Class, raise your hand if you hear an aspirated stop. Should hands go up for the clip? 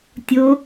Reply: no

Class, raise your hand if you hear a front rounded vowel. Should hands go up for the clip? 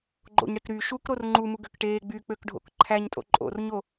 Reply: yes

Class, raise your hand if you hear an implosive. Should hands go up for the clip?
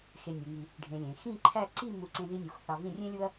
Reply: no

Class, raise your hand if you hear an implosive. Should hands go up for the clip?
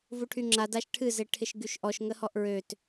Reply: no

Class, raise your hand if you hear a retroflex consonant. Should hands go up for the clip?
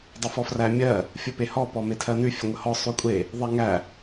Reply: no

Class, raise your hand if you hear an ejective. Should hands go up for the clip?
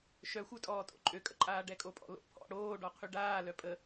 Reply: yes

